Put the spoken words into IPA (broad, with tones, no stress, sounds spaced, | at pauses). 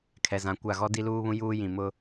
kʰ ɛ˨ z ã˨ kʷ a˦˨ ɣ ɔ˦ d i˦ l uː˦ β ũ˦ j uː˦ j ĩ˨ m ʊ˦